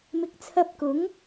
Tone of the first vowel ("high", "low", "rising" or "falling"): rising